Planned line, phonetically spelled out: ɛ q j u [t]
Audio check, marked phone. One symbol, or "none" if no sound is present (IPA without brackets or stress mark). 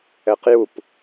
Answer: p